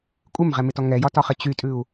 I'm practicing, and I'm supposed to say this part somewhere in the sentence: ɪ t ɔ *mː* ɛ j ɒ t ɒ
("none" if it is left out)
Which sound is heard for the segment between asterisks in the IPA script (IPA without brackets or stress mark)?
ŋ